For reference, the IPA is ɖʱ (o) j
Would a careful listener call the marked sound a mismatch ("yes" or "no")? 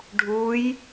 yes